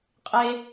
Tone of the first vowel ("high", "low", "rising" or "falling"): high